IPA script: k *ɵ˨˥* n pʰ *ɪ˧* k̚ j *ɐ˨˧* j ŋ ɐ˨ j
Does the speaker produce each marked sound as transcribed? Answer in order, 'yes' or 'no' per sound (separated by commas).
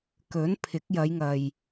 yes, no, yes